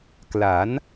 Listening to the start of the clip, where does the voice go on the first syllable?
rising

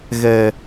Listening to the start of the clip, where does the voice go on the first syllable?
low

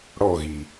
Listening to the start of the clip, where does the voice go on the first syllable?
falling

